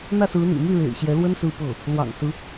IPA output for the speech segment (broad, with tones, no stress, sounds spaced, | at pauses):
n̪ ä˥˩ s ɹ̩˧˥ n̪ ḭ˨˩ m y˥˩ ɻ ḛ˨˩ ɪ̯ ɕ j ɛ˧˥ l w ə˥ n s ɹ̩˥˧ p ɤ˥˩ | l w ɑ̰˨˩ ŋ s ɹ̩˦